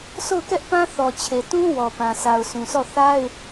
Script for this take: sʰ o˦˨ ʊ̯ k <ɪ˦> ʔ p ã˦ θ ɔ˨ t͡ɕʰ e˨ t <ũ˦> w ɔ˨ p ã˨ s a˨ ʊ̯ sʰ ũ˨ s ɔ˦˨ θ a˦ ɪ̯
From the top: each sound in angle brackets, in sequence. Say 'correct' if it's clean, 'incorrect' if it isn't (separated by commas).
incorrect, correct